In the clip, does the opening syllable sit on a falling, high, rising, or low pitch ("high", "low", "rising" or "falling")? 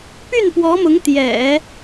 falling